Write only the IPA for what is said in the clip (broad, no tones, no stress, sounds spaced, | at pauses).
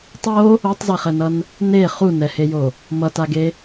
tˤ o | o tˤ z e χ ɛ n ʌ n | n e χ u n ɛ h e j o | m ʌ t a ɡ e